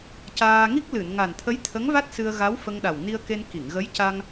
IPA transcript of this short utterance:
c aː˧ ŋ i˦˥ k̚ l ɨ˨˩˨ n ŋ a˨˩ n t̪ʰ ə˧˥ j t̪ʰ ə˧˥ ŋ v a˦˥ t̚ s ɨ˧ ə̯ ɣ a˧˥ w f ə˧ ŋ ɗ a˨˩ w n i˧ ə̯ k e˧ n k i˨˩˨ ŋ ɣ ə˧˥ j c a˧ ŋ

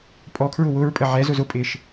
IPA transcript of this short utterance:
pʼ ɔ kʰ ɹ ʊ w ʊ ɹ pʼ ə ʕ ɛ z ʊ z ʊ pʼ ɪː ʃ

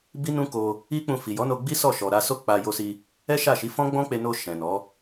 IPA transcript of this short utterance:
b i˦ n ũ˦ k o˧ | i˦ k͡p ũ˧ f i˨ j ɔ˨˦ n o˧ ɡ͡b i˦ s ɔ˦˨ ʃ ɔ˨ ɾ a˧ s o˦ k͡p a˧ j o˧ s i˧ | ɛ˦ ʃ a˦˨ ʃ i˨˦ f ɔ̃˦ ɡ͡b ɔ̃˦ k͡p e˧ n o˧ ʃ ɛ̃˨ n ɔ˨˦

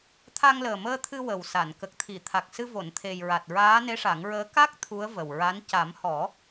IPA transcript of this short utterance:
t̪ʰ a˧ ŋ l əː˨˩ m əː˧ t̪ʰ ɨ˧ w ə˨˩ w s a˨˩˨ n k ə˨˩ k̚ t̪ʰ i˨˩˨ t̪ʰ a˨˩ k̚ s ɨ˧ v o˨˩˨ n t̪ʰ e˨˩ j ɹ a˨˩ t̚ ɹ aː˧˥ n e˧˥ ʂ a˨˩˦ ŋ ɹ əː˧˥ k a˦˥ k̚ t̪ʰ u˧˥ ə̯ v ə˨˩ w ɹ a˧˥ n c a˨˩˦ m h ɔ˨˩˦

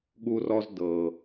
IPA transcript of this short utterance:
ɠ u˧ r ɔ˧ z d ɤ˨

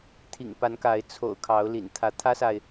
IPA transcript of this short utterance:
t̪ʰ ḭ˨˩ ŋ p a˨˦ n k a˨˦ ɪ̯ t͡sʰ o̰˨˩ ʊ̯ kʰ ɑ˨˦ ʊ̯ l ḭ˨˩ n t̪ʰ ä˨˦ t̪ʰ ä˦ s a˨ ɪ̯

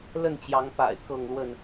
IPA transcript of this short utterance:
l ə˥˨ n t͡ɕ j ɑ˨˦ ŋ p a̰˨˩ ɪ̯ k ɤ˥˨ ŋ l w ə˥˨ n

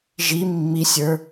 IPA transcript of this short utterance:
ʒ i mː i sʲ ə˞

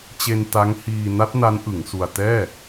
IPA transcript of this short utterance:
t͡ɕ e˧ n t a˦˥ ŋ h iː˧ n a˦˥ t̚ n a˦˥ n ʔ ɯ˩˦ ŋ s u˧ a̯ t ɛː˥˩

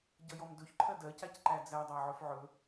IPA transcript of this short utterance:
ɟ ʌ j ɔ m d ɵ ç ǃʰ ɜ d ɜ c a c ǃ æ d͡z æ dˤ æ ʕ ɵ f ʕ ɵ

